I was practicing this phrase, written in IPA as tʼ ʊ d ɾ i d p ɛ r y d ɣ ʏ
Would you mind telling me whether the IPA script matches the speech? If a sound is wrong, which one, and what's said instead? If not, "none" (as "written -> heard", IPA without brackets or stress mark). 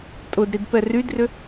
ɣ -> r